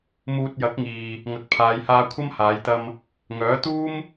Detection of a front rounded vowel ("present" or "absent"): present